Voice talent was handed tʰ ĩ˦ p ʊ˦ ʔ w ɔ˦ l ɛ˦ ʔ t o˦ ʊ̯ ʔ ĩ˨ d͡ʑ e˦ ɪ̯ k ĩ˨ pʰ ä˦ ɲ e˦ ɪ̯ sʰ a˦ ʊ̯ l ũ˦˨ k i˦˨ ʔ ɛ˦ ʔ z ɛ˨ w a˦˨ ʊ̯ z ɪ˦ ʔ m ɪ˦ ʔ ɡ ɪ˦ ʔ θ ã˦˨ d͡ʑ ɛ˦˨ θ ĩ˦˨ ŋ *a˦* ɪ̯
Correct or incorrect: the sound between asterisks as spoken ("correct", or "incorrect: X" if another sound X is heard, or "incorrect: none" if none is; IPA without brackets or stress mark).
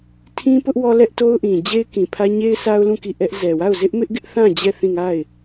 incorrect: a˦˨